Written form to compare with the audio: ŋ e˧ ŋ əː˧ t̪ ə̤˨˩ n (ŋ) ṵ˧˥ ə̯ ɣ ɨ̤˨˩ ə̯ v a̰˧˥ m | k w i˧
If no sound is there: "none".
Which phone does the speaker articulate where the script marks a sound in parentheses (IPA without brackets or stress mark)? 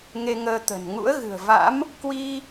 ŋ